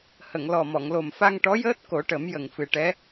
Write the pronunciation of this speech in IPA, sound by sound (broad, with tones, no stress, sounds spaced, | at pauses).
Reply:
h ə˨˩˨ ŋ l ɔ˨˩ m ɔ˨˩˨ ŋ l o˨˩ m f a˧ ŋ ʈ ɔ˧˥ j əː˦˥ t̚ k o˨˩˦ ʈ ə˨˩˦ m j ə˨˩ ŋ f ɨ˨˩ ʈ ɛ˧˥